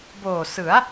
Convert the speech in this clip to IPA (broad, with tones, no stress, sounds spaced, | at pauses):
b oː˨˩ s ɯ˩˦ a̯